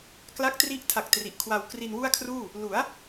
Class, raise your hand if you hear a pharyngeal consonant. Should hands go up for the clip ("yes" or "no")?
no